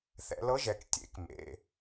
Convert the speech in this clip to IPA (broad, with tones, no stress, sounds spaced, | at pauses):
θ ɛ̰˩˧ l ɤ˧˥ ʒ ɛ˩˧ k tʲ ḛ˩˥ k m ḛ˩˧˩